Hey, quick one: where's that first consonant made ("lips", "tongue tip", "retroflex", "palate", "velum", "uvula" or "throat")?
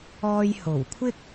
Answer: palate